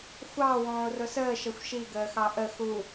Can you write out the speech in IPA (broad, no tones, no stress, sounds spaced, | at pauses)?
xʷ ɑ w ɔ̃ː ʊ̯ r ʊ s əː ʃ ʌ xʷ ʃ i ɡ əː x ɑ ʔ ə x u